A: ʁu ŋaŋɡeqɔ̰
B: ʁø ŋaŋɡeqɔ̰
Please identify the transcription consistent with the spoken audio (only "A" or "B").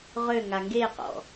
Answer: B